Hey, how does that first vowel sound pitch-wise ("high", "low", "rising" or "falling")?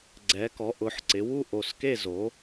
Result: rising